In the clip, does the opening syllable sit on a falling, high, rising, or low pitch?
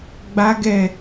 high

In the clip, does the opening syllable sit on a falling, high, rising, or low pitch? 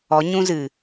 rising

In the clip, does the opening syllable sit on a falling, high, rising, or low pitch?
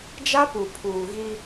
high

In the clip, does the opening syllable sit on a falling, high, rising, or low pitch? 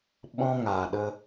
high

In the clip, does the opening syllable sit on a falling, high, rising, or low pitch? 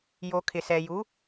low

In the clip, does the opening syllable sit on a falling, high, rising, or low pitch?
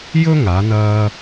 high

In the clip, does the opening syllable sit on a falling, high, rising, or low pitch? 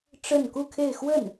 falling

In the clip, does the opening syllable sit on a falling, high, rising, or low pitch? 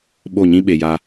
falling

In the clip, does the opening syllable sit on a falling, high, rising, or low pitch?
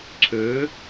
rising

